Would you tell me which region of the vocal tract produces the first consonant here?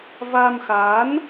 lips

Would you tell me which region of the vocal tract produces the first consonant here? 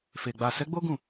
lips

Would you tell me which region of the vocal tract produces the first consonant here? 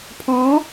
lips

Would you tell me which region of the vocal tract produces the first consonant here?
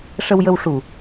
retroflex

